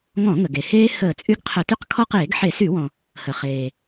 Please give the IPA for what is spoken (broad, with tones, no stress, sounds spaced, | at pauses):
ŋ ɔ̃˧˩˧ ŋ ə˩ ɡ e˩ h eː˦ h əː˧˩˧ t͡sʼ y˦ ɡ qʰ ə˧˩˧ t y˦ q kʰ ɔ˦ q eː˧˩˧ ɡ ħ e˧˩˧ s y˧˩˧ w ɔ̃˩ | h ə˩ χ eː˩